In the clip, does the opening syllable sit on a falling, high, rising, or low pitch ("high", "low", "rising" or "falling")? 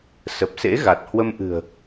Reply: low